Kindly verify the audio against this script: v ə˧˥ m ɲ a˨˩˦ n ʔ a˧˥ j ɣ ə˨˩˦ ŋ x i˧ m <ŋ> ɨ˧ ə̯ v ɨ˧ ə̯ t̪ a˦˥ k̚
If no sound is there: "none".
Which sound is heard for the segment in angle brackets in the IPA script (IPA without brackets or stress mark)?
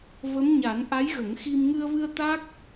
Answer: ŋ